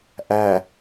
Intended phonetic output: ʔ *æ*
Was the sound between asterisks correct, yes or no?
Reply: yes